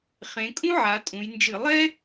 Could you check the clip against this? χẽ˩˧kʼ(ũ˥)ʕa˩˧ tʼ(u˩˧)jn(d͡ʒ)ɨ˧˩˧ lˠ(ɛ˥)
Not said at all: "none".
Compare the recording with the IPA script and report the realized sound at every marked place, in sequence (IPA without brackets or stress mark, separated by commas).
ũ˥, ũ˩˧, d͡ʒ, ɛ˥